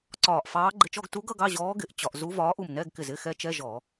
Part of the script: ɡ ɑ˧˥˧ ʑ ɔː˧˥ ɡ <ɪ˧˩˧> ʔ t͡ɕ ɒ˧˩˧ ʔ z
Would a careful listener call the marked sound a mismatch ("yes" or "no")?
no